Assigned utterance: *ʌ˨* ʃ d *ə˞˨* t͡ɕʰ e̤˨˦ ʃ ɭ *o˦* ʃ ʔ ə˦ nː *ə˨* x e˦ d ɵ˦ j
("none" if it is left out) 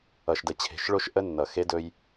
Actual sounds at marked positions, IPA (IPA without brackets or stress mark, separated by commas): ʌ˨, ə˨, o˦, ʌ˨